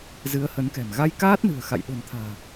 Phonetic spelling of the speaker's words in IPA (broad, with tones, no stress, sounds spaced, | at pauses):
z ɨ˨˦ ə̯ h ə˨˦ n k ɛ̤˨˩ m ɣ a˧ j k aː˦˥ t̚ n ɨ̤˨˩ ə̯ x a̰˧˨ j ɗ o̤˨˩ n t̪ʰ a̤ː˨˩